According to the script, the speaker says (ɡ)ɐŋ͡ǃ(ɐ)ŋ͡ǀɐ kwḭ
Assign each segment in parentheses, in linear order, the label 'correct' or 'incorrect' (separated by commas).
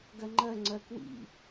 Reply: correct, correct